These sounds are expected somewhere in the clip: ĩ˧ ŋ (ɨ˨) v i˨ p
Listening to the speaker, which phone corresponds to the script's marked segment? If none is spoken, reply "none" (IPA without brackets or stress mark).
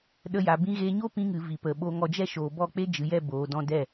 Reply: ɨ˨